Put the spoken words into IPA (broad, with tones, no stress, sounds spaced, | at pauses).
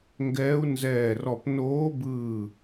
ŋ ɡ ɛː˧˥ u̯ n z ɛː˧˩ r ɔ˧˩ p n oː˧˥ b ɯː˧˩